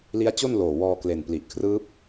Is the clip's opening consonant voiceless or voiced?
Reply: voiced